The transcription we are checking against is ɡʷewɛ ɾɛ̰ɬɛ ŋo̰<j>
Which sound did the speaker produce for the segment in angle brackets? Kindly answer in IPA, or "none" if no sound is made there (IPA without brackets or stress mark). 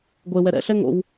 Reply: w